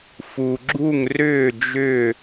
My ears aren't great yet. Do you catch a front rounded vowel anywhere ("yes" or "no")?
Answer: yes